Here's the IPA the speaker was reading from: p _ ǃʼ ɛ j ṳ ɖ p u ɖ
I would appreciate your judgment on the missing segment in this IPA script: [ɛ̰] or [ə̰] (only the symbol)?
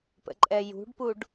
ə̰